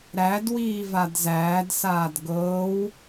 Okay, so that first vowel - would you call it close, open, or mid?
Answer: open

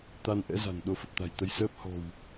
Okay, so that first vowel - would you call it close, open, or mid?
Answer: open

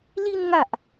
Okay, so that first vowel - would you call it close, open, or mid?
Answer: close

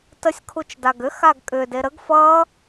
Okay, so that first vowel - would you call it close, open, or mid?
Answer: mid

